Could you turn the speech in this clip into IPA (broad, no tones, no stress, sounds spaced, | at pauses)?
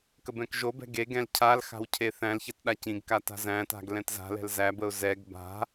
k ə b ɛ̃ k ʒ o b ɛ̤ ɡ e ɡ ɛ̃ l cʰ a l x a̤ w cʰ e θ æ̃ l ç ɛ t ɗ a c ĩ ɡ k a t a̤ z æ̃ t a̤ ɡ l ɛ̃ t z a̤ l ɛ̤ l z æ b ə ʊ̯ z ɛ ɡ b a̤